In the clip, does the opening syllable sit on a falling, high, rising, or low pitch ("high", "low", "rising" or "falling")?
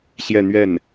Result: falling